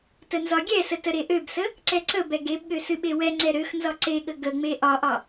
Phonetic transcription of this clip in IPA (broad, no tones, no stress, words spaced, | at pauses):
tənzɒɡʲɛsə təɾeʔøbsə | ǀɛǀəbɛ ɡebɠø sɨɓewɛŋ͡ǀɛ ɾøxnzɒ ǀeɠə ɡəŋ͡me ʔɒʔɒ